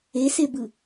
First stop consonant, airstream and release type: plain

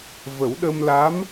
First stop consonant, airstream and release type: implosive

